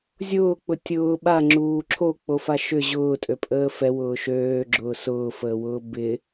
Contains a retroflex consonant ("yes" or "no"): no